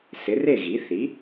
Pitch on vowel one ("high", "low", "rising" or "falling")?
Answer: rising